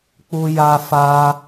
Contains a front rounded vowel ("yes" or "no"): no